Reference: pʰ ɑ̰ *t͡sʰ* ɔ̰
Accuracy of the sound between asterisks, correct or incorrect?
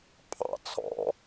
correct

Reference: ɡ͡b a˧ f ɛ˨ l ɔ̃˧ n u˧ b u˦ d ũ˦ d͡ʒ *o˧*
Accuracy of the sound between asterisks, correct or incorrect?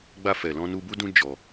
incorrect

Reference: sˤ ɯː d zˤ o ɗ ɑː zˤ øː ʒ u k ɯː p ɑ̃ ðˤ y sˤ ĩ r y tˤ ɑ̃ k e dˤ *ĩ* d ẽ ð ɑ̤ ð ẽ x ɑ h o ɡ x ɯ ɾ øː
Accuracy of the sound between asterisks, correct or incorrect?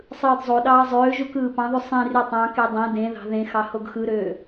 incorrect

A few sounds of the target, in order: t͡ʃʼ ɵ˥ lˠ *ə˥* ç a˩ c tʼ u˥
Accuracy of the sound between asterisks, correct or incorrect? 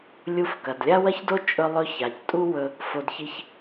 incorrect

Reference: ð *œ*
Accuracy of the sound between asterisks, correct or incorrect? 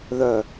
correct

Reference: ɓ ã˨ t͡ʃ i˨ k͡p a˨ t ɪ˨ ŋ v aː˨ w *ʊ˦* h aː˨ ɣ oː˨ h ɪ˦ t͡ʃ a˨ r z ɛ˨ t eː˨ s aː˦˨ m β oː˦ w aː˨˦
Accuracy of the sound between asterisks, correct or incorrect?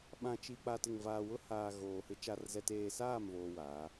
correct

